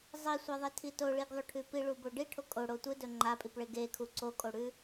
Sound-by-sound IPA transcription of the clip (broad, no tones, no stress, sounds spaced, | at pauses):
zˤ i sʷ a ðˤ e tʰ i t o ɭ i ɡ ðˤ o ʈʰ ʉ p i ɭ u b o ɖ i ʈʰ o kʼ o ɽ o tʷ ɨ d ɵ ŋ͡ǃ a pʼ i p ɭ e ɡ e kʰ u ǀ o kʼ o ɽ ʉ